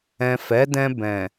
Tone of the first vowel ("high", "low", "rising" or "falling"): low